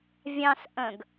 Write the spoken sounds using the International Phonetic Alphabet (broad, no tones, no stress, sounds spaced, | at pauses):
vʲ ɑ̃ s ʔ ə̃ ɡ